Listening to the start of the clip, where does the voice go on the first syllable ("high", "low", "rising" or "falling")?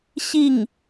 falling